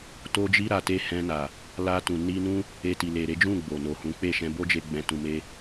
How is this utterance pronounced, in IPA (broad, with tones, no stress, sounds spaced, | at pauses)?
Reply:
t o˦ d͡ʒ i˦ ɾ a˧ t e˦ h ɛ̃˧ n a˨ | l a˧ t ũ˨ n i˧ n ũ˦ | e˧ t i˨ l e˨ ɾ e˨˦ d͡ʒ ũ˦˨ ɡ͡b o˨ n o˨ h ũ˨˦ k͡p e˦˨ ʃ ɛ̃˧ b o˦ d͡ʒ e˧ ɡ͡b ɛ̃˨ t ũ˨ m e˧